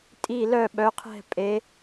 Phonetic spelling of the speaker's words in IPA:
tʼ i˥˨ l œ˥˨ ɓ œ˨˥ qʰ ɛ̤˥˨ pʼ e˨˥

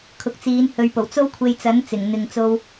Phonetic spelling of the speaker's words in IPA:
kʰ ʊ˨ k̚ t͡s iː˨˧ n h ɵ˨ ɥ p o˨˩ w t͡s o˥ w kʷʰ e˧ j t͡s ɐ˨˥ n t͡s ɪ˨˩ ŋ n̪ ɪ˨ ŋ t͡s o˧ w

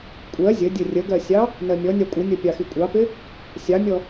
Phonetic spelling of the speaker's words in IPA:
kʷʼ ɜ zʲ ə dʲ ə rʲ ə ɡ ɜ sʲ ɑ | n ɜ mʲ ɔ nʲ ɑ kʷʼ ɪ nʲ ɔ pʲ ɑ x i kʷʼ ɑ p ɪ | sʲ ɑ mʲ ɔ

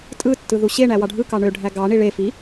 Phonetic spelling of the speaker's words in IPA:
tʼ ɯ tː ɯ ð u ɕ e ɳ æ w ɑ ɖʱ ɯ k ɑ ɳ ø ɖʱ æ ɡ ɑ ɳ i ɭ e f i

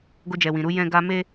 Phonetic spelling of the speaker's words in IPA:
ɡ o˧ d͡ʒ ɛ˨ w ĩ˨ ɾ u˧ j ɛ̃˦ ɡ a˧ m e˦

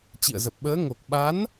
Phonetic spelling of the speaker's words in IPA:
t͡ɕ ḭ˧˨ ə̯ z ə˨˩ p̚ ɓ əː˨˦ ŋ o˨˩ k̚ ɓ a˨˦ n

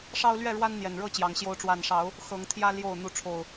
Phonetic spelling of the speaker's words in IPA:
ʂ ɑ˦ ʊ̯ l ɥ ɛ˥˨ ɻ w a˦ n n̪ j ɛ˨˩ n ɻ ɤ˥˨ t͡ɕ j ɑ˨˦ ŋ ɕ j o˦ ʊ̯ ʈ͡ʂ w a˥˨ n ʂ ɑ˨˦ ʊ̯ | x ɤ˨˦ ŋ t̪ʰ j ä˦ l j o˥˨ ʊ̯ n̪ u˨˦ ʈ͡ʂʰ o˨˩ ʊ̯

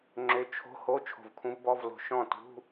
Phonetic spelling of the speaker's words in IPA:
ŋ͡ǁ ø˧˥ t͡ʃʰ o̤˧˥˧ h o˧˥˧ t͡ʃʰ o̤˧˩ v kʰ ũ˧˥ v b ɔ˧˥˧ v l o̤˧˩ ʃ ɔ̃˥˩ t ṳ˧˥˧

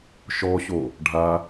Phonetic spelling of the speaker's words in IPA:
ʃ ɔ ɕ o | ɖʱ a

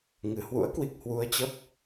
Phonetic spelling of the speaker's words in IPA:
ŋ ɨ˧˩ h w ṵ˧˥ ə̯ k w i˨˩ k̚ h w u˧ ə̯ t͡ɕ ə˦˥ p̚

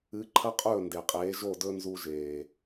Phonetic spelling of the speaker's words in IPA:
ɨ˨˦ ǃʰ ɐ˦ qʼ ɵː˦˨ n d e˨ qʼ eː˨˦ ʒ o˦˨ d ɵ˦ n z u˦ ʒ eː˨

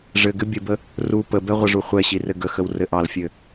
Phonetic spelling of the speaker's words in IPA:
ʐ ɘ ɡ ɘ bʲ ə b ə | r u p ə b ɛ ʁʷ ə ʐ u χʷ ɛ ɕ i r ɘ ɡ ə x ə w r ɘ ʔ ɑ l fʲ ɘ

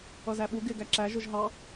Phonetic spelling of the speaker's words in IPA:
ʌ z æ ɓ u ɡ ɪ ɡ æ ǁ æ ʒ ʊ ʒ ɦ ɑ

